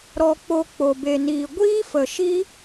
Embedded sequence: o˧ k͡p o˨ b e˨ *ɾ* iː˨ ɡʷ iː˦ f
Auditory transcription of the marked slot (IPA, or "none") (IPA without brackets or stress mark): n